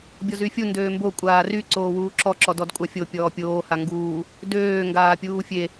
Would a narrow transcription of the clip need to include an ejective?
yes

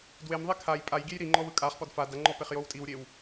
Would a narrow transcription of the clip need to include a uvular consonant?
yes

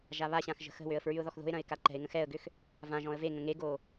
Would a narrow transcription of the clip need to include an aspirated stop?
no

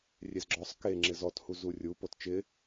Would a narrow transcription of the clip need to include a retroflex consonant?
no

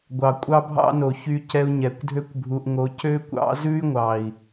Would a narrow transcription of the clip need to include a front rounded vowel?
yes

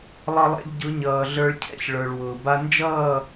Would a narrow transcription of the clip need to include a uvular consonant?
no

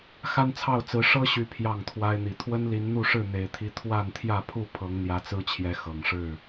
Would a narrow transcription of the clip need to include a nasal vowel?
no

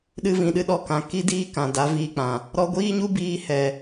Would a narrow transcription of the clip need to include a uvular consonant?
no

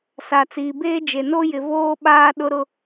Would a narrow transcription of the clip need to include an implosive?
yes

